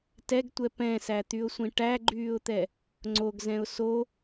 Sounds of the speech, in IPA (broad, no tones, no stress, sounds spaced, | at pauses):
t ɛ ɡ tʷ ɛ p ɛ̃ s æ t̪ y ʊ̯ sʷ ĩ ʈ æ ɡ͡ǃ yː ʊ̯ t̪ ɛ | ŋ͡ǀ o ɡ z ɛ̃ ʊ̯ s o